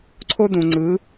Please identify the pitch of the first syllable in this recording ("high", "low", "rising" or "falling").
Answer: high